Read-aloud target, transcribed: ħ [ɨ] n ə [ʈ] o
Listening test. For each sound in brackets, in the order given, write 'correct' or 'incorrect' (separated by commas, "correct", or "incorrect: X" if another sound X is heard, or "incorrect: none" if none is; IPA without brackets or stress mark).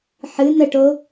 correct, correct